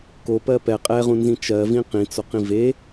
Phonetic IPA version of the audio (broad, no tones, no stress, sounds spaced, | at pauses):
k o p ɜ p ɛ qʼ ɛ ʁ ũ n z ĩ t͡ʃ ɜ v ĩ q ĩ t͡s o q ĩ v e